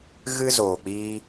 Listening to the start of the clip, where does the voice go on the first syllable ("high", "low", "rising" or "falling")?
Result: high